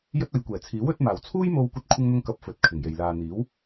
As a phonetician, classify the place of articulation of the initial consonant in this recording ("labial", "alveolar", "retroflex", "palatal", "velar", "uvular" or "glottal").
palatal